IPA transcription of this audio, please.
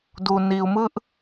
d u˨ n i˨ u̯ m ɯ˦ ʔ

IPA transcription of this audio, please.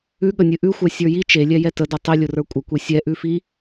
ʉ ɠ ə nʲ ɨ ʔ ʉ xʷ ɛ sʲ ə˞ j i t͡ʃ e lʲ ɛ j ɛ t ə d ɛ tˤ i lʲ ʊ r ə˞ kʷʼ ə kʷ e sʲ ɛ ʔ ʉ f i

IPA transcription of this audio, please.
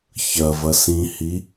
ç ɐ v ɐ s ĩ h i

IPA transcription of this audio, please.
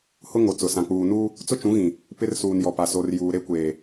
h ʊ˦ ŋ o˨ t͡s ʊ˨ s ã˨ k͡p uː˨ n uː˦ | t͡s ʊ˦ t͡ʃ ũ˨˦ ɣ ĩ˨ | p ɪ˦ r s uː˨ n j ɔ˨ p a˨ s o˨ r j uː˨ ɾ e˦ kʷ eː˨

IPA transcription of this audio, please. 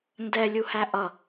n d ɛ lʲ u h æ ʔ ʌ

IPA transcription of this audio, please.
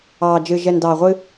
ɑː˨ d͡ʒ ɨ˨ ʒ ɛ˨ n d ɑː˨ ʁʷ ɨ˦

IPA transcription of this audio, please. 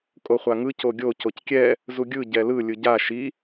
kʼ o χʷ a ŋ ɯ c o ɡʲ o c o c kʲ ɛ | z u ɡʲ ɯ ɟ ɛ l ɯ lʲ ɯ ɟ a ʃ i

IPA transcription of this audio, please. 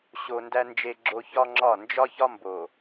ɕ o˨ n d æ˨ n d͡ʒ e˨ ɡ͡ǁ o˨ ç ɒ˦ ŋ͡ǁ ɒ˦˨ n d͡ʒ ɒ˦ ç ɒ˦ m b o˨

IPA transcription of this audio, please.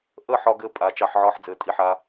ʔ ə˥˧ ħ ɒ˧ ɡ ɘː˧ pʼ a˩˧ t͡ʃ ɑ˧ ħ ʕ ɒː˥˧ ħ d͡z ɘː˩˧ tʼ i˧ ħ aː˧

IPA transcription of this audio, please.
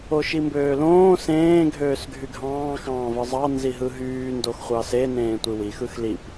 o ʃ i m b øː l õː s ẽː ɡʱ øː s ɡʱ y ɡʱ ɑ̃ː x ɑ̃ː v ɯ zˤ ɑ n z i ɦ ɯ ɦ yː n d o x χʷ ɑ s e n ẽː tʷ i w i x ɯ x l i p

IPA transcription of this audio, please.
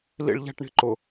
l ḭ ɭ ʎ a̤ ʈ ɳ i̤ ǃ ʊ

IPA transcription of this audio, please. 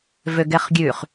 v ø ɡ ɛ χ ɡʲ ʉ χ

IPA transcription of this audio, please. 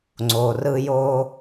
ŋ͡ǀ o˩ r ɯ˧ j o˧

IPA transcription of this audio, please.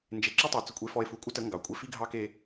n d͡ʒ e˨ ǁ ʉ˦ tˤ ɛ˨ t͡s ə˨ kʷʼ e˨ f ɔ˨ e̯ f u˨ kʷʼ ə˦ t ə˨˦ ŋ ɡ ɑ˨ kʷʼ e˦ f i˦ ɡʱ ɑ˦ k e˦

